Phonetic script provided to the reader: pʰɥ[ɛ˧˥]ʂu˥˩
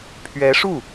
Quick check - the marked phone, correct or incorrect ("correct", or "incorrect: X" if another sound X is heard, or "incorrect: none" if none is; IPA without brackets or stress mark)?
correct